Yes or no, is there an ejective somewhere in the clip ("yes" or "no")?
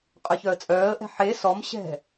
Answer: yes